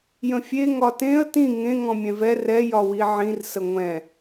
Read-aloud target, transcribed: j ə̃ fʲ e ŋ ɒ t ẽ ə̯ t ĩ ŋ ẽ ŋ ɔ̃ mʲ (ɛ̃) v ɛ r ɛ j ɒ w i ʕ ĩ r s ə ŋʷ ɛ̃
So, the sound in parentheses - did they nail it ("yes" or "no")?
yes